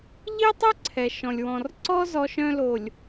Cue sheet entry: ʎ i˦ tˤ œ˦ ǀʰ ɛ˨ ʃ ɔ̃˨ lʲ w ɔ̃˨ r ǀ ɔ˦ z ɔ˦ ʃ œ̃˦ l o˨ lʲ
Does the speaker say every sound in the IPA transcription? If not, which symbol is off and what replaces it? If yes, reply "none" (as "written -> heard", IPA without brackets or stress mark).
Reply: none